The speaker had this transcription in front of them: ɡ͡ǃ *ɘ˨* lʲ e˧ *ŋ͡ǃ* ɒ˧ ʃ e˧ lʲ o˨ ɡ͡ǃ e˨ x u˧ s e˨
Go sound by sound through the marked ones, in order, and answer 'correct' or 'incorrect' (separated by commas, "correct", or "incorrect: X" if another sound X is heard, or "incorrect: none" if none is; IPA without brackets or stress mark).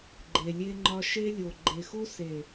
incorrect: e˨, correct